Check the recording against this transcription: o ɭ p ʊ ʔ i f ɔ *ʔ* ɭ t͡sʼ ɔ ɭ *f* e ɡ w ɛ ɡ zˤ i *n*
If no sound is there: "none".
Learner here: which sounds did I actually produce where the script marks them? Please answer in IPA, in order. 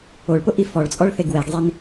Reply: none, θ, n

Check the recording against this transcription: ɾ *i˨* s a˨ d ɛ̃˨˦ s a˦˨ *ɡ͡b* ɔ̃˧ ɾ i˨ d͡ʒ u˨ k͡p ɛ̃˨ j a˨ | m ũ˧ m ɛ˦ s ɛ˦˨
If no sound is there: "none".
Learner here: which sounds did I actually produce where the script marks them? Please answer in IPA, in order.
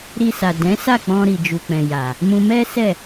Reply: i˧, k͡p

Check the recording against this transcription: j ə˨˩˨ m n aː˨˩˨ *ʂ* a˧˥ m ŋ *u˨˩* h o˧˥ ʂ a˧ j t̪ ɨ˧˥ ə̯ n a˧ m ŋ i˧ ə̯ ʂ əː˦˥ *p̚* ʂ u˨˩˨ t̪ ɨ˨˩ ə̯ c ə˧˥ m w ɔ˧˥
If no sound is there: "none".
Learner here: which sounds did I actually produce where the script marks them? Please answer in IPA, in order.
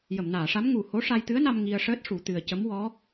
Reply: ʂ, u˨˩, t̚

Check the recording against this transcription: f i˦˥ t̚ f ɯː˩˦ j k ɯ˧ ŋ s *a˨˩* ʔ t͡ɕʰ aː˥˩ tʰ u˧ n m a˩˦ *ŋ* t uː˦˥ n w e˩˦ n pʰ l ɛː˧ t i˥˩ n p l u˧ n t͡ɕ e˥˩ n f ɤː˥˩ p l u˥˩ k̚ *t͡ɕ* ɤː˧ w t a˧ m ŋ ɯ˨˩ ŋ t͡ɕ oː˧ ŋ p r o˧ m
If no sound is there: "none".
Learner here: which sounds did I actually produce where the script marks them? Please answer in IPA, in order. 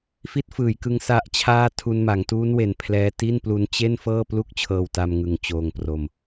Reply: a˦˥, ŋ, t͡ɕʰ

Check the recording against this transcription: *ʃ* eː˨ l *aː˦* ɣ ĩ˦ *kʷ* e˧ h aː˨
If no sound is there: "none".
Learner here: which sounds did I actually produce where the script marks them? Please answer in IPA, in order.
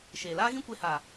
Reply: ʃ, aː˦, kʷ

